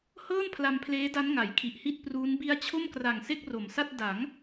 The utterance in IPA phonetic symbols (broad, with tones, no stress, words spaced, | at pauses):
hɤː˥˩n pʰla˧mpʰleː˦˥da˦˥n ŋa˩˦jkʰi˨˩ʔhi˥˩t̚pruː˦˥n bi˦˥a̯t͡ɕʰo˥˩mkra˨˩ŋ se˥˩k̚ro˩˦msa˥˩t̚ da˩˦ŋ